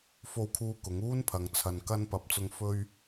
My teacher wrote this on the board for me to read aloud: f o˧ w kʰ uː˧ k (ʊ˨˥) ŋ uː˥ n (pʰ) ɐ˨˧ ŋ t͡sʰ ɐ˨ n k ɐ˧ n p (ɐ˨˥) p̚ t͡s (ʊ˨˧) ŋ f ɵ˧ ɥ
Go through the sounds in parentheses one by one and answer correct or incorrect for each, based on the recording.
correct, correct, correct, incorrect: ʊ˧

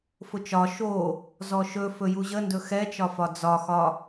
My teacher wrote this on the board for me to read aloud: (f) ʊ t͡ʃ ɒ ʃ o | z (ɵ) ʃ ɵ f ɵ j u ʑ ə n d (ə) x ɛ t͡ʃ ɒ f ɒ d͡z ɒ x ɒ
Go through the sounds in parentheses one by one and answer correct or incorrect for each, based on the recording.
correct, incorrect: ɔ, incorrect: ɵ

